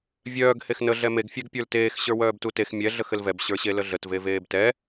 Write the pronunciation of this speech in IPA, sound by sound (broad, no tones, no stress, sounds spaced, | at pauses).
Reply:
vʲ œː ɡ h e x n ə ɮ ɛ m e ɡ fʲ ɛ ɡ pʲ ə˞ l t eː x ɕ ə˞ w œː b t u t e x mʲ ɛ ɮ ə x ɘ l v ɛ b ɕ ə˞ ɕ e l ə ɮ ə t v e v eː b t ɛ